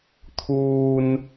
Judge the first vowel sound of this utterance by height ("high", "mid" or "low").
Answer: high